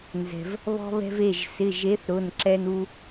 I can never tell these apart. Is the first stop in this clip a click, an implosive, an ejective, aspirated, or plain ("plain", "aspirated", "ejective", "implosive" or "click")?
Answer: click